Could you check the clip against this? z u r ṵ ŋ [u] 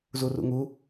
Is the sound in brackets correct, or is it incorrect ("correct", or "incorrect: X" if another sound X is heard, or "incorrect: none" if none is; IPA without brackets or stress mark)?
correct